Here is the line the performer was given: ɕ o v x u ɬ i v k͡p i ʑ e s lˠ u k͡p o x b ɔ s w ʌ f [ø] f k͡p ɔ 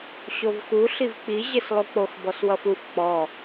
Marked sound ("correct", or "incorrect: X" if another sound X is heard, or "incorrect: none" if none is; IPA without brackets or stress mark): incorrect: u